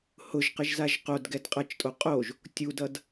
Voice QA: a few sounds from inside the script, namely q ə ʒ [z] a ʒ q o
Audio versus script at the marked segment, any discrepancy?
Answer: no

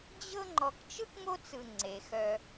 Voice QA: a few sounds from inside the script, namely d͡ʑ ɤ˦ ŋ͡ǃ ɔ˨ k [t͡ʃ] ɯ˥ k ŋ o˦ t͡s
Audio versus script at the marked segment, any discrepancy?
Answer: no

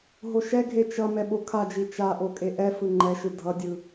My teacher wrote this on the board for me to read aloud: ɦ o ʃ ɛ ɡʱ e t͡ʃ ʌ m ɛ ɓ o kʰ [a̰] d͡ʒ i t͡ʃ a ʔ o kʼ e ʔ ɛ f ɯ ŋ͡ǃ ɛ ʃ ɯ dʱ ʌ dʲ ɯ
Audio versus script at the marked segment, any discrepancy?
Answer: yes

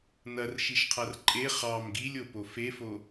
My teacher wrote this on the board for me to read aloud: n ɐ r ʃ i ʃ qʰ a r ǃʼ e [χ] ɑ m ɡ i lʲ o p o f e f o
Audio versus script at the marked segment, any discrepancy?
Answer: no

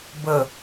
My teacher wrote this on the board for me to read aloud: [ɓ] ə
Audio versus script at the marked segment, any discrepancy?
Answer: yes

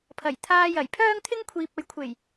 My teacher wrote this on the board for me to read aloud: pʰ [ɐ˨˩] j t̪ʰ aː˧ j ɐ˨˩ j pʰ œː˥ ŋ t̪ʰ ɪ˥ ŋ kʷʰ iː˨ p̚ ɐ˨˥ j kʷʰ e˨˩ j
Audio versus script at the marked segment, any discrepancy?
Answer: no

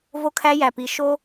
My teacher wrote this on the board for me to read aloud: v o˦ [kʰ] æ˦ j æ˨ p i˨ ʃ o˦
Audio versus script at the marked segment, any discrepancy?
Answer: no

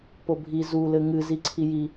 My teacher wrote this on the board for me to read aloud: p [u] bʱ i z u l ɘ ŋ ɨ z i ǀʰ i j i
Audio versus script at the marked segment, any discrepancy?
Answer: yes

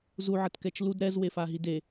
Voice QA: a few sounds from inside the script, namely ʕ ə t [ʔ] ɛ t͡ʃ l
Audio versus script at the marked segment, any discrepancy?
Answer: yes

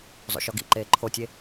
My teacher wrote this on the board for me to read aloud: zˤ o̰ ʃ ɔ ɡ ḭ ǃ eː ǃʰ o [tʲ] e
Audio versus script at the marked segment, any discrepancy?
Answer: no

